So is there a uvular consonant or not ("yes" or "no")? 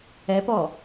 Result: no